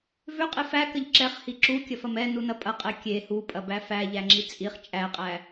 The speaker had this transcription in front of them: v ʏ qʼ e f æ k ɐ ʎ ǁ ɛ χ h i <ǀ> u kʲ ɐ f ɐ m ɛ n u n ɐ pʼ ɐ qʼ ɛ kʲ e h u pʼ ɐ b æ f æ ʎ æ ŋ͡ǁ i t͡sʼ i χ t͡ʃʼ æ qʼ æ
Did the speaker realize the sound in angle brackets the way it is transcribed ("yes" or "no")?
no